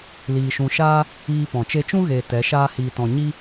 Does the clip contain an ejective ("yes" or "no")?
no